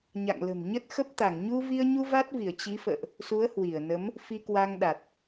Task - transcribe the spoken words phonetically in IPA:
ɲa̰˧˨ŋlə̤˨˩mɲə˦˥t̚xə˦˥p̚ t̪a˧˩ŋɲu˧vi˧ə̯ɲu˧ va˦˥t̚vi˧˩ə̯ t͡ɕi˨˦fə̰ː˧˨ʔ | su˨˦ə̯hwi˧˩ə̯nə˨˦m | fi˧kwa˧ŋɗa˨˩t̚

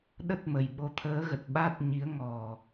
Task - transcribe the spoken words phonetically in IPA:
ɗə˦˥t̚ mə˨˩jɓo˧ t̪ʰəː˨˦ɣə˨˩t̚ ɓa˦˥t̚ɲi˨˦ə̯ ŋɔ˨˩

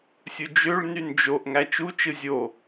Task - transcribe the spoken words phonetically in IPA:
sʲud͡ʒøɭnyn d͡ʒoʔ ŋæt͡ʃut͡ʃɯ zʲo

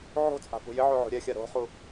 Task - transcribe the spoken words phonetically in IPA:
ʕo̤t͡sʼa̤ pṳjɪʕo ʕo̤ɾʲɛxʲa ɾo̤χu

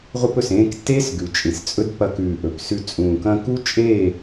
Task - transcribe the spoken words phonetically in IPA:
ʁʷɨ˧pɵ˨sẽː˧ktːeː˦s ɡʉ˨t͡ʃʼĩ˨s t͡sʼɵ˦dpɐ˧kʉː˨ ʔɵ˨psʉ˧ t͡sʼũː˨kɐ̃˧ku˦ t͡ʃʼeː˦˨

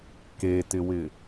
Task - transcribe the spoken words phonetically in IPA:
ketɪwɪ

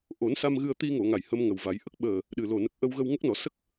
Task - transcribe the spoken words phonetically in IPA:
ʔo˨˩˦nsa˧m ɣɨ˧ə̯ t̪i˧ŋo˨˩˨ ŋa˨˩jhə˧mŋə˨˩wva˨˩˦j ʔə˦˥k̚ɓəː˨˩ | ɗɨ˨˩lo˨˩ nə˨˩k̚ʔə˧wɣə˧w ŋə˦˥k̚nɔ˨˩˦ sə˦˥k̚

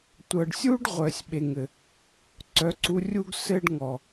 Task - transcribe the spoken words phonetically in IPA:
tʷɤ˨ɖsʲu˦ɖ ʁʷœ˨sʲɓe˨ŋɘ˨ | ǀœ˨˦ǀu˧ rʲu˦ɡsɘ˦ɖŋɔ˨

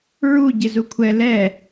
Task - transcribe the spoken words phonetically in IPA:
ɹu ɟɪzukʷʰɛ lɛ

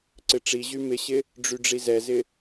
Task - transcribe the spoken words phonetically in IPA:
ǀɪʈ͡ʂiʑy mɪɕɪ | ɖ͡ʐyɖ͡ʐizɛzɪ

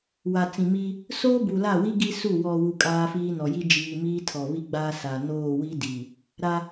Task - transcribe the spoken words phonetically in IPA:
wa˨t͡sĩ˨ mi˦ | soː˦bu˨la˦˨wi˦ ɡi˦su˦˨ wɔ˨ wu˦kʼaː˦ fiː˦nɔ˨ji˦ d͡ʒiː˨ miː˦tʰɔ˨βi˦ɡ͡baː˦ sa˨ noː˦˨wi˦ di˨ | ɾa˦

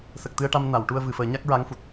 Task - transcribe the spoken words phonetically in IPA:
sə˨˩k̚t̪ɨ˧ə̯ʈa˧m na˨˩˨wʈu˧ə̯ vɨ˨˩fəː˨˩˦ ɲa˦˥k̚ɹa˧˥ŋ fu˨˩t̚

